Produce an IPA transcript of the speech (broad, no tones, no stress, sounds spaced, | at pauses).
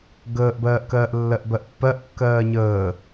ɡ əː ʔ b ɜː ʔ k ɜː ʔ lː ɜ ʔ b ɜ ʔ pː ɜ ʔ kː ɜː ɲ əː